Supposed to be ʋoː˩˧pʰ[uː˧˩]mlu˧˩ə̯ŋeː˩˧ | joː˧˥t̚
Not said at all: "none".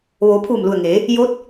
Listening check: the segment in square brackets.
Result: uː˧˩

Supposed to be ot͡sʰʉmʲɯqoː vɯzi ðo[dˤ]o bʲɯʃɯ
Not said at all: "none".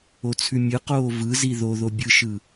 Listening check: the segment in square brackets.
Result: ð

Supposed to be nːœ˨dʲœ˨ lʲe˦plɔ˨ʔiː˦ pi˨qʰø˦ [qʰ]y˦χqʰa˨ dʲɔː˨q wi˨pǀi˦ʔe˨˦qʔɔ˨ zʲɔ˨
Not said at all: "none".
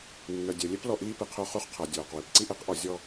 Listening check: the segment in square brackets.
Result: χ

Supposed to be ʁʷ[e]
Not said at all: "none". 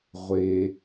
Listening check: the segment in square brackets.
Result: e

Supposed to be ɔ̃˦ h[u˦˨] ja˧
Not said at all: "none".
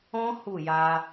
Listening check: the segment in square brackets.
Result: u˦˨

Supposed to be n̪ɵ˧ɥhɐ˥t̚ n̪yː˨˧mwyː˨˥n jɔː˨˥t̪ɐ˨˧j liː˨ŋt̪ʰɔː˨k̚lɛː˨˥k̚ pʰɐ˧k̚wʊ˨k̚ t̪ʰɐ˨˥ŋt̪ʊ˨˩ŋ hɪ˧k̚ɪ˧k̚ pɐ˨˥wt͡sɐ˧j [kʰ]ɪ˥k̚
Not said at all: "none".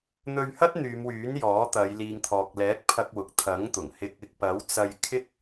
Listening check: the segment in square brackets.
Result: kʰ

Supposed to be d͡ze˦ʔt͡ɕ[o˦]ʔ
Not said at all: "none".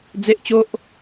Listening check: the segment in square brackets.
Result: o˦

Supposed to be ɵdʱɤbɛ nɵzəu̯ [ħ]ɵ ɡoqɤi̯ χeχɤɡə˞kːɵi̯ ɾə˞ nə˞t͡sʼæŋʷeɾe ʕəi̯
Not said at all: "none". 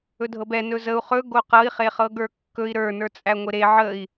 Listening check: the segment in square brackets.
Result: χ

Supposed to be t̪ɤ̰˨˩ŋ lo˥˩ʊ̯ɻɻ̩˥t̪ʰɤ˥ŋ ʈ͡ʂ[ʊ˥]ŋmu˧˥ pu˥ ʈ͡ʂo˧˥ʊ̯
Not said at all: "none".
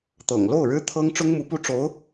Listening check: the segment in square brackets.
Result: ʊ˥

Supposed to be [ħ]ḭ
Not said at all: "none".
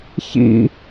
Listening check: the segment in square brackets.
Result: ç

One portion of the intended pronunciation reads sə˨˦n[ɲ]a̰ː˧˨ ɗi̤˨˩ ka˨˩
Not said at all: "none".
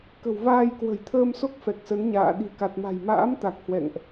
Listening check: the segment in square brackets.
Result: ɲ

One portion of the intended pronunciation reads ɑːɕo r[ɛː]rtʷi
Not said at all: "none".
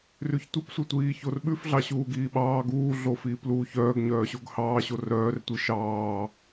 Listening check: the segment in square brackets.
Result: œː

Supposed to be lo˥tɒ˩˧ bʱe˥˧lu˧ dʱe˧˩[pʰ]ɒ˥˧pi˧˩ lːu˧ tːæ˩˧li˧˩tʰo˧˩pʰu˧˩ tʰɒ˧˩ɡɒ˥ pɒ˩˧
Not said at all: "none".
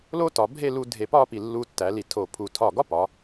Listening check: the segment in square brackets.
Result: p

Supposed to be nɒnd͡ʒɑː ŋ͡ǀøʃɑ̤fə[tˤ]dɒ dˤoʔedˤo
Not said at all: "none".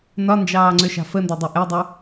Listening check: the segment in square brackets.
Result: n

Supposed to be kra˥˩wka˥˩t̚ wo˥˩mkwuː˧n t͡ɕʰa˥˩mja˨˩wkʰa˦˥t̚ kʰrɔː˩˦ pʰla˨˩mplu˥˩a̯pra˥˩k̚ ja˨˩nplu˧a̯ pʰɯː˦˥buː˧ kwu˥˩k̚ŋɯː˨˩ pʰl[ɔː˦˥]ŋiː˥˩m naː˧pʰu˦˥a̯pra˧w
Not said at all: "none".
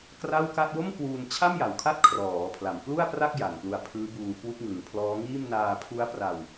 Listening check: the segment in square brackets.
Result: ɔː˦˥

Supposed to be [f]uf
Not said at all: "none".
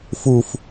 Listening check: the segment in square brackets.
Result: f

